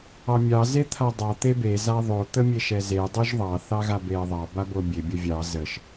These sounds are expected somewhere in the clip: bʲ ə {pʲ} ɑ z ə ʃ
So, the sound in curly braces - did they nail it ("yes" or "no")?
no